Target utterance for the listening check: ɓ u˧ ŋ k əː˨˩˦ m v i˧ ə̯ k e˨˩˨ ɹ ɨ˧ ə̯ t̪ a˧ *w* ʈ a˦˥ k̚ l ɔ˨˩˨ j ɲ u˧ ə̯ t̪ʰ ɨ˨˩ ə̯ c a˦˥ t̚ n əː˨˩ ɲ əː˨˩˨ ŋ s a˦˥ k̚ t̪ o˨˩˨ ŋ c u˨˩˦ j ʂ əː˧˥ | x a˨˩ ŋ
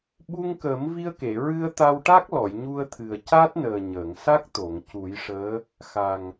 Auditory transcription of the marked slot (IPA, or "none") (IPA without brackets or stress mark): w